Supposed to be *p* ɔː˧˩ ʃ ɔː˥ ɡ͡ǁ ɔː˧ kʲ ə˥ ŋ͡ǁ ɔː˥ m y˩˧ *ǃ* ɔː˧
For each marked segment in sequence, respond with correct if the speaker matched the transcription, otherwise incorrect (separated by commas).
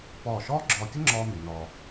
correct, incorrect